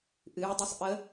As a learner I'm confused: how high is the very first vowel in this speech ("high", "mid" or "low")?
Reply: high